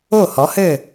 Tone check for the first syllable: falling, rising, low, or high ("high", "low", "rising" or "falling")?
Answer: falling